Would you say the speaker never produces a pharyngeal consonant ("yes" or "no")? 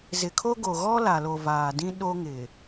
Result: yes